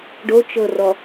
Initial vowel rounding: rounded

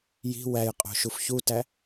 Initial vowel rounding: unrounded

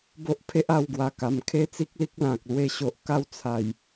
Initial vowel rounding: rounded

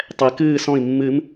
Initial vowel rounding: unrounded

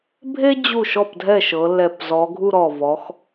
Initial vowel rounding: unrounded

